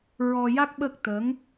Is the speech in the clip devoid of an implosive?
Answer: no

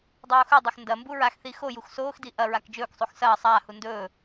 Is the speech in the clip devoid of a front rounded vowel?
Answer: yes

